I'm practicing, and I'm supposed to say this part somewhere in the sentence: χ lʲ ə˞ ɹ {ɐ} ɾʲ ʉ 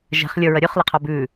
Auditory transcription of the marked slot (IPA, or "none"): ɐ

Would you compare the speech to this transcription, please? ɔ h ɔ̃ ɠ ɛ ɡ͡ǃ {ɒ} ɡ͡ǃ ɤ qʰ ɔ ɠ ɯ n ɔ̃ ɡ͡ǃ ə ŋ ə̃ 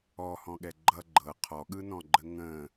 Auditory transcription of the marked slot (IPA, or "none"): ʌ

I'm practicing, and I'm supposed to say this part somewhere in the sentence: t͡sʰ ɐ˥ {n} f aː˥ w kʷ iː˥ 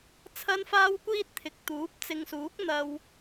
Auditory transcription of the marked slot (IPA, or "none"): n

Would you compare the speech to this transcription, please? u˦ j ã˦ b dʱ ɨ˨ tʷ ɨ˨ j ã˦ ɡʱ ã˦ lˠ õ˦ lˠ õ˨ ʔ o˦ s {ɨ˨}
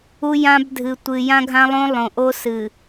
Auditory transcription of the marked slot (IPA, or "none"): ɨ˨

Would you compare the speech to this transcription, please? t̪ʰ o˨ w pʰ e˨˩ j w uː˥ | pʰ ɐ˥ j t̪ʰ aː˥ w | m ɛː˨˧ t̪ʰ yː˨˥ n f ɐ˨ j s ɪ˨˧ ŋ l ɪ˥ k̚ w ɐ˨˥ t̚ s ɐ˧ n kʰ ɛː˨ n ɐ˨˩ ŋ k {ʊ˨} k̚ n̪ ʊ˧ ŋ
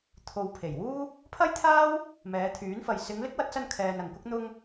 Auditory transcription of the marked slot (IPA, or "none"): ʊ˥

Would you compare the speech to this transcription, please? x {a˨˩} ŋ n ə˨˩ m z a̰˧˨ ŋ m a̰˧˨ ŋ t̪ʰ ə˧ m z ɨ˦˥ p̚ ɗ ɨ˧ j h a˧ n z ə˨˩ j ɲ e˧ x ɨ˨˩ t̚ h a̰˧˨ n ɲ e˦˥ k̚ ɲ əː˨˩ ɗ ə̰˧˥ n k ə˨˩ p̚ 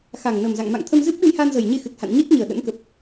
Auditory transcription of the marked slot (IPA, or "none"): a˨˩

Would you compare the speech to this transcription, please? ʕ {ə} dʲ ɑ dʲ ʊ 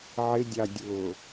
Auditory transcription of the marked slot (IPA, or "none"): ɪ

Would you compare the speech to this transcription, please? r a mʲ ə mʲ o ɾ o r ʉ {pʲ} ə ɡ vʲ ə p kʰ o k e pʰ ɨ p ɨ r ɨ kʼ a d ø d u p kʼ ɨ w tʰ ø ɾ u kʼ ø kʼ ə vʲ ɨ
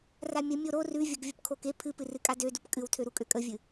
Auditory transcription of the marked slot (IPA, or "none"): vʲ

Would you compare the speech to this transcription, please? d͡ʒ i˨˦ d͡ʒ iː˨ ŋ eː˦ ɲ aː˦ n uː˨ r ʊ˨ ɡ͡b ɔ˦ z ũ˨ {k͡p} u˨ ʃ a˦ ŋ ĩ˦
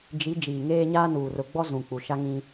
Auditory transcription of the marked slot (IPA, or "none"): k͡p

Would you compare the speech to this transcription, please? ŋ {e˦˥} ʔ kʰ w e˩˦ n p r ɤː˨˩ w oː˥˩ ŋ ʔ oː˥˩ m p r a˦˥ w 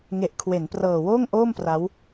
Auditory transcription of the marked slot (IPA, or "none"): e˨˩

